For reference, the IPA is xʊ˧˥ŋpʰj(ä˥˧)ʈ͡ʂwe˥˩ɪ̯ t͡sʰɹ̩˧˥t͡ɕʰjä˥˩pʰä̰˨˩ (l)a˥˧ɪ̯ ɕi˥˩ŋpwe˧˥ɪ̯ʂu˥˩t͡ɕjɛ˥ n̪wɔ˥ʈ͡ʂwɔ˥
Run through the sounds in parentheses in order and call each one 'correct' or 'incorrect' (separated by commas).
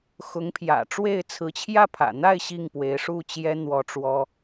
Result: incorrect, incorrect